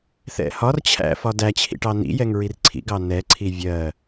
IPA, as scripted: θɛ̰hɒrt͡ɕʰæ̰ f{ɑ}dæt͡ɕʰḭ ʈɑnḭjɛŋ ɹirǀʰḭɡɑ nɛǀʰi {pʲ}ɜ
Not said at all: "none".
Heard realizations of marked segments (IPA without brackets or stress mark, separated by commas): ɒ, vʲ